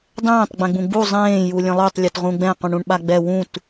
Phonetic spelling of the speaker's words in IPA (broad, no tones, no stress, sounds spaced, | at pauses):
dˤ ẽː tˤ ɡ͡b ɛ̃ ɡ͡b ũ ɡ͡b u zˤ ẽː j u lʲ ə̃ lˠ ø tˤ lʲ ə t ʁ ũ ɡ͡b ɛ̃ q ũ ɳ ũ ɳ ɓ a ɡ͡b ɛ w ũ t